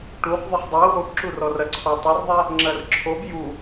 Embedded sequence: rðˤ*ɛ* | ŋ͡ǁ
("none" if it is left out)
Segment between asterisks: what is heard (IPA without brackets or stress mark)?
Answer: ɛ